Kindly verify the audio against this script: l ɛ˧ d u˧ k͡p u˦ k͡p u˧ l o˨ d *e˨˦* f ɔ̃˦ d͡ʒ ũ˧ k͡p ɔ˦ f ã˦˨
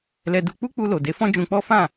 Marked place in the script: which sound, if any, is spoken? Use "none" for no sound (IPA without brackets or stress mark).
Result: e˨˦